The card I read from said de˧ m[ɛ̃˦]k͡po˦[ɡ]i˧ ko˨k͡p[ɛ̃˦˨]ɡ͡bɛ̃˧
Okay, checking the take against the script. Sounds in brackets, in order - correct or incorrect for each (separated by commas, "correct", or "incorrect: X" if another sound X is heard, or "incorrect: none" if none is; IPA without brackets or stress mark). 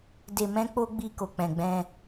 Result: correct, incorrect: ɡ͡b, incorrect: ɛ̃˨